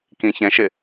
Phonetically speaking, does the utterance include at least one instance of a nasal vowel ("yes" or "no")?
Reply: yes